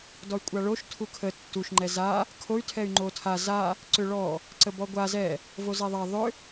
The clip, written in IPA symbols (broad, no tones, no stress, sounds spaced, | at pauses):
d ɔ y̯ kʷʼ a ɭ o ʃ tʰ u kʰ ə tː u ʃ ŋ͡ǃ ɛ z a | kʰ o y̯ tʰ ɛ y̯ ŋ͡ǃ o tʰ a z a | ǀ ʏ ɭ ɔ | ǀ ə b ɔ ɡʷ a z ɛ | v o z ɛ ðˤ a ðˤ ʏ